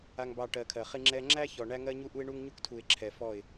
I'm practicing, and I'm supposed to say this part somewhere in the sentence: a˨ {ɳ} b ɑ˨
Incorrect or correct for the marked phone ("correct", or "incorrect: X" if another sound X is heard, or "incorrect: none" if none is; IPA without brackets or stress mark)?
incorrect: ŋ